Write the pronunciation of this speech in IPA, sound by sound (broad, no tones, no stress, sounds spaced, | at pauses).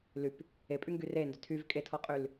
l y p | e pʼ y ŋ ɡ y r e n d ʏ tʰ y v kʼ e tʰ ɔ qʼ y l